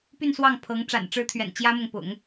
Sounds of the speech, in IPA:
py˥˧nswɑ˥˩ŋpʰɤ˧˥ŋ ʈ͡ʂa̰˨˩nʈ͡ʂɻ̩˧˥t̪ʰɥɛ̰˨˩n t͡ɕjä˥mʊ˨ŋ pʊ̰˨˩˦ŋ

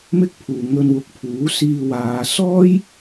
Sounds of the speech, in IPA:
mɪ˥k̚pʰuː˨ ŋɵ˧nwʊ˨k̚ pʰuː˨˥siː˧waː˨˧ sɔː˥j

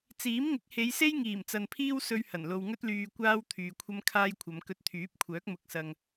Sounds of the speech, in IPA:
t͡siː˨˥mŋɪ˨˥k̚he˨˧jse˥j ŋiː˨˩mt͡sɐ˨npʰiː˥w sɵ˥ɥhɐ˨˩nlo˧w ŋɵ˥t̚lyː˧ kʷaː˥w t̪ʰyː˨kʷʰɐ˥mkʰaː˥jkʷʰɐ˨˧m kɵ˧t̚t̪ʰyː˨˥p̚kʷʰœː˨˥k̚ mʊ˨˥k̚sɐ˨ŋ

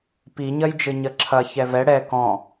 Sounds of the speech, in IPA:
piɲɐjd͡ʒɘ ɲɐǁʰɐ çɛvɛ ɽɛ kɔ̃

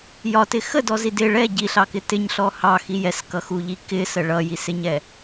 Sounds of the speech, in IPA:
jɒtɪ xədɔzi dɪ ɭɛ ɟiɬɑkɪ tɪɲɬɔ hɑxi jɛskʌxuʎi kɪsə ɭʌjisɪɲɛ

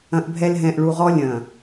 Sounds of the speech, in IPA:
ɐ̃˨ʔbʱɛ˨l ɦɛ̃˨ʔɭu˨ʁɔ˦ lʲɐ̃˨

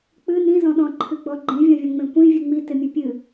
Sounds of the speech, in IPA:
k͡pɨ nĩzɔ̃ɗɔ̃ ǃʰɨɡ͡bɔɡ͡ǃĩ vʲɔ̃vʲɔ̃ŋ͡mẽkʷĩ vʲɨŋ͡mitɪ mʲɯpʲɨ

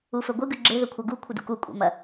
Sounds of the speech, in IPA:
ufɵɡʷɨɡʉ ɡ͡ǁeðɵ kʷʰɐɡu kʷʰɨdṵku kʷʼḛmɐ

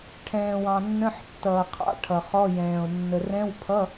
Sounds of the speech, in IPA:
ʈʰɛ̃ː˨wɑ̃˨nːə̃˧˥˧ħtːʌː˨ qʰɑ̰˧˥˧ʈʰʌ˨χɔ˧˥˧jɛ̃ː˨o̯ nːə˨rɛ̃˧˥˧wpʰʌ˧˥˧

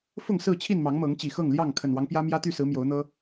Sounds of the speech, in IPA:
fʊ˥˨ŋsɹ̩˥˨t͡ɕʰi˥˨n mɑ˨˦ŋmɤ˨˦ŋ t͡ɕi˨˩xɤ˥˨ŋljɑ˥˨ŋ kʰə˨˩nwɑ˦ŋ pjä˦ mjä˦ t̪y˥˨sɹ̩˨˦ mjo˨˦ʊ̯n̪ɤ˦

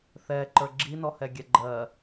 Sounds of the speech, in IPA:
θɛǃə˞ ɡ͡ǁinɔhɛɡʲɛ ɡ͡ǃɜ

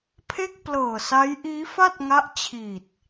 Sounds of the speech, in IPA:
pʰe˥˩k̚plɤː˨˩sa˦˥j ʔiː˦˥fa˥˩t̚ŋa˦˥ʔt͡ɕʰi˨˩t̚

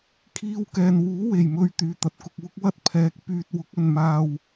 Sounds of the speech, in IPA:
kʰiː˧wkɛː˨nwuː˨˥ we˨˩jmɵ˧ɥ t̪yː˨t̪ɐ˨t̚kʊ˧k̚wʊ˥k̚ wɐ˥t̚pʰɛː˨˥k̚ pyː˨t̚wʊ˨˥k̚ɵ˨nmaː˧w

